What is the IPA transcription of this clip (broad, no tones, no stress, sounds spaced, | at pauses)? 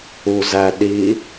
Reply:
u z æ ɗ i